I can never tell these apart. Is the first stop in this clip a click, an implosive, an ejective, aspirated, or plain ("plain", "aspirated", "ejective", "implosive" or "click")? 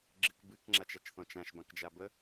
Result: click